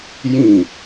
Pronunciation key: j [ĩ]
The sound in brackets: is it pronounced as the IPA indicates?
yes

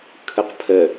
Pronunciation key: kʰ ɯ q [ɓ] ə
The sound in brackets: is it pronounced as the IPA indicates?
no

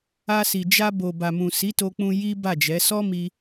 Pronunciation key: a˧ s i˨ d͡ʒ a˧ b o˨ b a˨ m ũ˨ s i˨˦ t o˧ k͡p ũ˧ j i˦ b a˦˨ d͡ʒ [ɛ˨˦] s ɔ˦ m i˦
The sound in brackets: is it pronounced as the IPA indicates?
yes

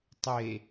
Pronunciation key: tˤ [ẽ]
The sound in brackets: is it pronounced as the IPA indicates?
no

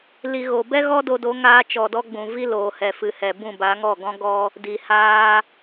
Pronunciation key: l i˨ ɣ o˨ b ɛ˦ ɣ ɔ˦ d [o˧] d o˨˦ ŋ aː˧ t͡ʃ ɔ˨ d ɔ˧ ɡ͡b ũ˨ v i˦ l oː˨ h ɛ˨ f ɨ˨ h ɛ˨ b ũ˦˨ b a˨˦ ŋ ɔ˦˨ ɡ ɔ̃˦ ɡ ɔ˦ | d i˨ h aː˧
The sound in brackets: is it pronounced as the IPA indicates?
yes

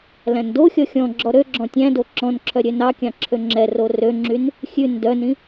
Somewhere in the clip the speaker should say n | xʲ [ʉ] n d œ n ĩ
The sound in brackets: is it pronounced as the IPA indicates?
yes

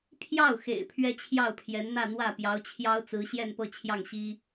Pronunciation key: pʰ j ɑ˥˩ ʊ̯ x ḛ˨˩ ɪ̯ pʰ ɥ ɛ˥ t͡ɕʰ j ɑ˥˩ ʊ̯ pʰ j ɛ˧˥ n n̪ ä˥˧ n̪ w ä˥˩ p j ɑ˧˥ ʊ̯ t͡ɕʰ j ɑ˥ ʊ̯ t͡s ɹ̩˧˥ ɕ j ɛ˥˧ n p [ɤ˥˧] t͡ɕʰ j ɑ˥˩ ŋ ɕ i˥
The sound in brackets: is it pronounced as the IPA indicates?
yes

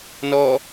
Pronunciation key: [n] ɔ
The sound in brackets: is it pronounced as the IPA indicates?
yes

